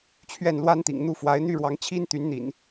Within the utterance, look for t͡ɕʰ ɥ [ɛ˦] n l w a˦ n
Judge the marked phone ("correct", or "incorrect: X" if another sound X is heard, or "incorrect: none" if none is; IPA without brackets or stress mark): incorrect: ɛ˥˨